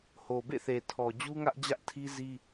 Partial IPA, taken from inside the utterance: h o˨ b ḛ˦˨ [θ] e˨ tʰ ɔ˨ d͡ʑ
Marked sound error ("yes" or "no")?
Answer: no